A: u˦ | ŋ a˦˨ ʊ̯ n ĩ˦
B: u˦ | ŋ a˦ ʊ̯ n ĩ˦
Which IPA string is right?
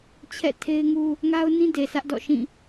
B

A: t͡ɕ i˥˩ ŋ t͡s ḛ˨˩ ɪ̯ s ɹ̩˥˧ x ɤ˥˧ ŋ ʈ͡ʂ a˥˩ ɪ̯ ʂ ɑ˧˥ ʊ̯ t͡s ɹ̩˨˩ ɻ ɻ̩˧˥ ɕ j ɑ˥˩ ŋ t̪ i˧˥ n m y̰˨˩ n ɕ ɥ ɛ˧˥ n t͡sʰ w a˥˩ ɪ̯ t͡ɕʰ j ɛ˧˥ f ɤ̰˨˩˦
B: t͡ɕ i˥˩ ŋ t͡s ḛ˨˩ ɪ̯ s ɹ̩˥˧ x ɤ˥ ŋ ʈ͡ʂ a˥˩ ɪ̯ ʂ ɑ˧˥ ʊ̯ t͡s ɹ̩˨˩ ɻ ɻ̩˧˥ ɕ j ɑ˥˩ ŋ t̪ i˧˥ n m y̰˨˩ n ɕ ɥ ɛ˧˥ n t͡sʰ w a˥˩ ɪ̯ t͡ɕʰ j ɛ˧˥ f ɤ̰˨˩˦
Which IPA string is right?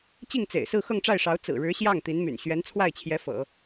A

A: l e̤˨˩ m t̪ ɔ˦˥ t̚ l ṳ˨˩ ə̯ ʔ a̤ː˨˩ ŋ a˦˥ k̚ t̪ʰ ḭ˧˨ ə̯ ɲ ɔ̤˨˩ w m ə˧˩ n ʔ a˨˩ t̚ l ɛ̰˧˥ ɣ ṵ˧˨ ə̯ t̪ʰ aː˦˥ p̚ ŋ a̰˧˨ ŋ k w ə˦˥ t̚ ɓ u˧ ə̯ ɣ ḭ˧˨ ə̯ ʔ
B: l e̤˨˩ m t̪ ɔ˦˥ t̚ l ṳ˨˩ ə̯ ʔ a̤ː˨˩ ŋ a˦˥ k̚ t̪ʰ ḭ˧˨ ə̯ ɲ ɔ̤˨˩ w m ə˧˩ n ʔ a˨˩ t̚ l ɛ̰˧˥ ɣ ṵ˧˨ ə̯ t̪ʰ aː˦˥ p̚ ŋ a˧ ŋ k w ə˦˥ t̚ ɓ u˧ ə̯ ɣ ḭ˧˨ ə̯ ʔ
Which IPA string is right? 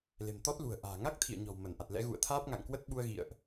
A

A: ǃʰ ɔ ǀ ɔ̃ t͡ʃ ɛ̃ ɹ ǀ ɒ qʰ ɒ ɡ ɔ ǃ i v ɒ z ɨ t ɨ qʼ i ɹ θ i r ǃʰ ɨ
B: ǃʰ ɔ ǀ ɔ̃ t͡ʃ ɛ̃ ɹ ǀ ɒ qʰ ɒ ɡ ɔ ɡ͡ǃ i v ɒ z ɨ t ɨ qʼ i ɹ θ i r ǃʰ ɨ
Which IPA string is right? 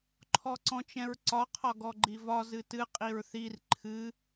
B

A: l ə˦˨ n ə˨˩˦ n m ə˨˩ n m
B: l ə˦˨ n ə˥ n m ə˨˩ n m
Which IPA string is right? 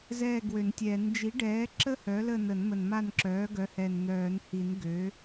A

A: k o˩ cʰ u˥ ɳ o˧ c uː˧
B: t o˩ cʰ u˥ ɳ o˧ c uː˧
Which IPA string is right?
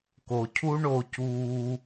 A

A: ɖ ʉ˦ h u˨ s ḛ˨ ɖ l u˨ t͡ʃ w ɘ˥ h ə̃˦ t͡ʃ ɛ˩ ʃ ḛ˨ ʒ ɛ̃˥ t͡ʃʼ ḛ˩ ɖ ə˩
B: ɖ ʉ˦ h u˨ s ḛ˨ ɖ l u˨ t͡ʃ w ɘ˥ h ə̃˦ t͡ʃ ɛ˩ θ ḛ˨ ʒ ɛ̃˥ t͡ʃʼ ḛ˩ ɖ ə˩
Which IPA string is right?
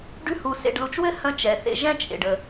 B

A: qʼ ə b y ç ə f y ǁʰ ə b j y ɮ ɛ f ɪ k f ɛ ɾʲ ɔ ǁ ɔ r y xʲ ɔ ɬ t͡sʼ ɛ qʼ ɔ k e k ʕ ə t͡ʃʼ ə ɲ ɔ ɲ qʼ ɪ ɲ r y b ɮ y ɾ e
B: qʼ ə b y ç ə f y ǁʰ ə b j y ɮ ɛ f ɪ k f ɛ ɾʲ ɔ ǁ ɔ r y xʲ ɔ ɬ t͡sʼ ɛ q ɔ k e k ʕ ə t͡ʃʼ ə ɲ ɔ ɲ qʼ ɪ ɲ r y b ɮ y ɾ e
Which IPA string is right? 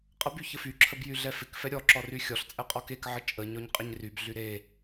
A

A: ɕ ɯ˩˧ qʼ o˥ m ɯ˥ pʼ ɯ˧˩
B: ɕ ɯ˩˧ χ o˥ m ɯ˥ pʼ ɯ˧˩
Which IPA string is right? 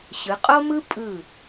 A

